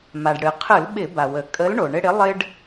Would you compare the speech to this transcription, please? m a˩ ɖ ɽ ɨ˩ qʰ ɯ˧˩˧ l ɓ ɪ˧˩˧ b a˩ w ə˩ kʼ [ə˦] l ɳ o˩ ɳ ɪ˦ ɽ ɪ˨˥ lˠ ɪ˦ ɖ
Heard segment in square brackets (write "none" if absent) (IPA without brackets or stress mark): ə˨˥